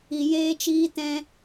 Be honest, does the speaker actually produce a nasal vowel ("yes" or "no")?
yes